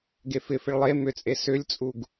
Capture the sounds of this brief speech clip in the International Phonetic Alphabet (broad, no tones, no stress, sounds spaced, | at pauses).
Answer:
ɡ e f ɪ f ɪ ɭ lˠ e m ʏ t͡sʼ e s ʏ lʲ t͡sʼ u ɡ